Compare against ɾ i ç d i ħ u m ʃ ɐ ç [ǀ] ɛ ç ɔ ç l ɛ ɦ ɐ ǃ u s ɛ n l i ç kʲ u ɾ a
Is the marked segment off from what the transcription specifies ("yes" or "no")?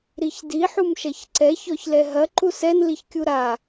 no